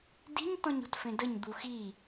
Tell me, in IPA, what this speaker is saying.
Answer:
di̤ɲtɔ̃ɲo̤tfẽ dəɲd̪u xi

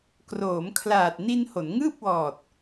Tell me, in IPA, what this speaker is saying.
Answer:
kroː˩˦mkʰlaː˨˩t̚ni˧n ho˩˦nŋɯː˥˩p̚wɔː˨˩t̚

